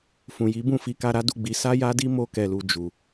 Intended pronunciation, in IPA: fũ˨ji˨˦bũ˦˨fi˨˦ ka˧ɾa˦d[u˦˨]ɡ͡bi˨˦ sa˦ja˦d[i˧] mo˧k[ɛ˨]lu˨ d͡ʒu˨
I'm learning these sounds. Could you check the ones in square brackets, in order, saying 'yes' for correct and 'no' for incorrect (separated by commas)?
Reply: yes, no, yes